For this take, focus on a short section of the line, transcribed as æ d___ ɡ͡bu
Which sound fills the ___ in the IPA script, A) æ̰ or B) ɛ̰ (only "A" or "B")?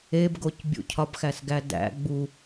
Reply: A